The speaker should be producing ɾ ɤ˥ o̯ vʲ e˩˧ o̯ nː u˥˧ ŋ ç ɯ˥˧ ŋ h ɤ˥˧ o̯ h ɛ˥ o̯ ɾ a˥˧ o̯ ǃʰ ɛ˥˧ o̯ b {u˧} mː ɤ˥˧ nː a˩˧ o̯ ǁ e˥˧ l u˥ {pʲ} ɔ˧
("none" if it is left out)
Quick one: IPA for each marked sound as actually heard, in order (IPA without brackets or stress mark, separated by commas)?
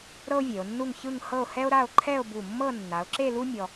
u˧˩, mʲ